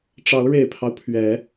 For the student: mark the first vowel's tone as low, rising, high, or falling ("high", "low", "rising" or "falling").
rising